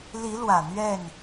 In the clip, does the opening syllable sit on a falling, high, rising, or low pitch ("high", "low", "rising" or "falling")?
rising